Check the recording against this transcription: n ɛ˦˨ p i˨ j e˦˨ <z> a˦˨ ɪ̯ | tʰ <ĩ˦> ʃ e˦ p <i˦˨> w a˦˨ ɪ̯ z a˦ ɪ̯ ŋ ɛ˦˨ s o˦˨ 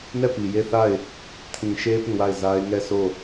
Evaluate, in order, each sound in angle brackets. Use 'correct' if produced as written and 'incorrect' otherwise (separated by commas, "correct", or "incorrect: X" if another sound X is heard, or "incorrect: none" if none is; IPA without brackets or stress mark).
incorrect: θ, incorrect: ĩ˨, incorrect: ĩ˦˨